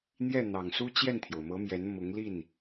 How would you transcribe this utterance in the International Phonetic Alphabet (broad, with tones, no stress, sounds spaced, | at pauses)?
n̪ j ɛ˥˩ n̪ ɑ˨˩ ŋ s u˥ t͡ɕ j ɛ˥˩ n t̪ʰ j o˩ ʊ̯ m ɤ˧˥ m j ɛ˧˥ n m ʊ˧˥ ŋ l i˥˩ n